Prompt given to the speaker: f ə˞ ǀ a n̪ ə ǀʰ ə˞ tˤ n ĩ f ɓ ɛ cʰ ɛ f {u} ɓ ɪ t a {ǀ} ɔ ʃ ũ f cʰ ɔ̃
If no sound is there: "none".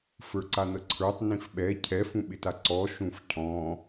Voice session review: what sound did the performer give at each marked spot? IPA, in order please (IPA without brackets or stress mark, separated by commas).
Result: ũ, ǀ